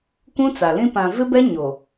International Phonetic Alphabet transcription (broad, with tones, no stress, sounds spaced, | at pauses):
kʷ ũ˦ t͡s a˨ l ĩ˦ p ã˨ v ɪ˦ b ɛ˦ ɲ o˨